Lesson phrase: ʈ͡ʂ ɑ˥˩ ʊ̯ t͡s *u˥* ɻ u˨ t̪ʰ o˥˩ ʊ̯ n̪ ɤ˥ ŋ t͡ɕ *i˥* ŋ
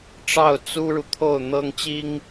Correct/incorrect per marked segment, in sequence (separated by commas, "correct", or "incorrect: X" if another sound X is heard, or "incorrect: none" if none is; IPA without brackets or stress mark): correct, correct